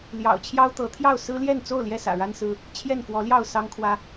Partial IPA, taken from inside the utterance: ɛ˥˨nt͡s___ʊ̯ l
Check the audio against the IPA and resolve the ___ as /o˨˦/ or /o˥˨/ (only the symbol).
o˥˨